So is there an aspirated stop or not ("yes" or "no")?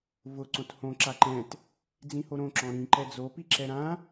no